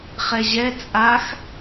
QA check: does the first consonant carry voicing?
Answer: no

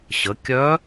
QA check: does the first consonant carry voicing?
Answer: no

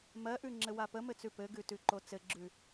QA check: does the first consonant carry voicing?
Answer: yes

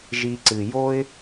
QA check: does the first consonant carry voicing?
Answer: yes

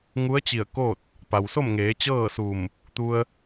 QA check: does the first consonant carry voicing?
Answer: yes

